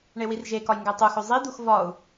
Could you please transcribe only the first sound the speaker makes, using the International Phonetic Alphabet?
ɳ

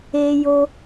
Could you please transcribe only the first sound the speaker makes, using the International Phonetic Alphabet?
e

